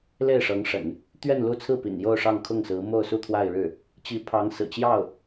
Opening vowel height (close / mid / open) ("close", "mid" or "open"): mid